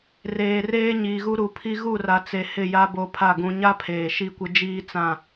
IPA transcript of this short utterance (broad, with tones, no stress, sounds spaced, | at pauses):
r eː˨ r eː˦ ɲ iː˨ ɣ u˦ ɾ u˨˦ pʰ i˦ ɣ u˦˨ r a˨ t͡s e˨ h ɪ˦˨ j a˦ b o˦ pʰ a˦˨ ɡ ũ˨ ɲ a˦ pʰ eː˨ ʃ i˦˨ kʷ ɪ˦ d͡ʒ iː˦ t͡s ã˦˨